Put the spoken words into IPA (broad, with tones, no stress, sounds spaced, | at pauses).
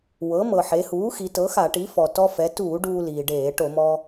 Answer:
w ɤ˩˥ m ɤ˩ ħ e˩˧ h uː˩˥ x i˩˧ t ɤ˩˥ x a˧˩˧ ʈ i˩˥ f ɔ˩ t ɔ˧ f ɛ˩˧ t uː˧˩˧ ɖ uː˧ l iː˩ ɖ eː˧˩˧ ʈ o˧˩˧ m ɔ˧